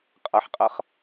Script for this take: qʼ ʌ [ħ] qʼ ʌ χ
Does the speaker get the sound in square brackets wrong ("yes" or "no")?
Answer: no